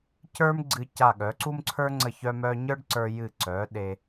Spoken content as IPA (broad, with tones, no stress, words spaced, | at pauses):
cə˞˥m ɡ͡ǀɨ˧ca˧˩ ɠœ˩˧ǀu˥mǀʰə˞˥ ŋ͡ǀə˧˩çœ˧mœ˧ ɲə˞˥ɖǀə˞˧ jɨ˧˩ǀœ˩˧ ɗe˧